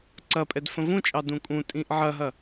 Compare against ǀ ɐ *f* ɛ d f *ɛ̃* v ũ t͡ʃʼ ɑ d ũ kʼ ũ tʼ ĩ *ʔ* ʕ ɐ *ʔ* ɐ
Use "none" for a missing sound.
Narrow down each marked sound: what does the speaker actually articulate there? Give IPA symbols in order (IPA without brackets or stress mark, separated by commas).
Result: pʼ, ə̃, ʔ, ɦ